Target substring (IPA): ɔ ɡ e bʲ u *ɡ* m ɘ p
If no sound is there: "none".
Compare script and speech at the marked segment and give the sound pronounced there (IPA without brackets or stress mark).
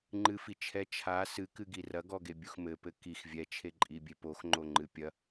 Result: x